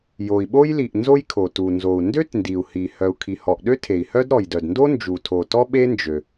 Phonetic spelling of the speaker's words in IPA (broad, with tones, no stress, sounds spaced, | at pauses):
j o˩ i̯ ɓ o˥ j l i˩ ʔ n z o˥ j kʰ o˩ t u˩ n z o˩ u̯ n d ø˥ t n d i˩ u̯ h i˩ h œ˩ u̯ kʰ i˩ h ɔ˩ ʔ ɗ ø˥ tʰ e˩ i̯ h œ˥ d ɾ ɔ˩ j d œ˩ d n d o˥ n d͡ʒ u˩ tʰ o˩ t ɔ˥ ɓ e˥ n d͡ʒ ø˩